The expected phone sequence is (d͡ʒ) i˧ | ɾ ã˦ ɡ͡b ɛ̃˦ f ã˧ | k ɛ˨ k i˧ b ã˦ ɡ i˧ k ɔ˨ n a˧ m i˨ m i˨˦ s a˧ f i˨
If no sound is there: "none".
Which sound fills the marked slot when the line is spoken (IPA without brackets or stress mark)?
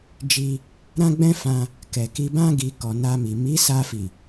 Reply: d͡ʒ